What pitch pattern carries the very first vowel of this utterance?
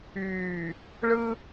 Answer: low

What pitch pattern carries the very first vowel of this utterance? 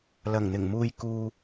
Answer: low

